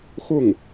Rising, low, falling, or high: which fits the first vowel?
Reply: falling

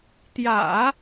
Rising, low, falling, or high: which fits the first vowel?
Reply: low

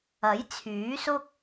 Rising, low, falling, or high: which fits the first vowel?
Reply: rising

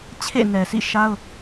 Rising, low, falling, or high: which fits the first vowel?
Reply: falling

